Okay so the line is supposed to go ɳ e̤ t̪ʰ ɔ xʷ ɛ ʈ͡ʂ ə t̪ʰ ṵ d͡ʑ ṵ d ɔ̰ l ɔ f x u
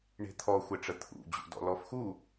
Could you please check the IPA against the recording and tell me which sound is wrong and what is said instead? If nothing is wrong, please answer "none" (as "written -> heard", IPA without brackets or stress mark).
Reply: none